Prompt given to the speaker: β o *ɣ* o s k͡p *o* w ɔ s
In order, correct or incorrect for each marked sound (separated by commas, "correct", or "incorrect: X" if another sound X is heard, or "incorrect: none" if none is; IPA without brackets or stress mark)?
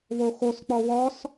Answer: incorrect: x, incorrect: ɔ